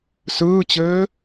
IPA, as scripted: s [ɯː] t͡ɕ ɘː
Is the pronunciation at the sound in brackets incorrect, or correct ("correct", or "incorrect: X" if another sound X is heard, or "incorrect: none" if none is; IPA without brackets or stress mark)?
correct